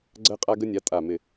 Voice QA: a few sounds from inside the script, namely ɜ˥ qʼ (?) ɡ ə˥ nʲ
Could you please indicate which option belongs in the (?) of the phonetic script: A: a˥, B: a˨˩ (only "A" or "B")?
A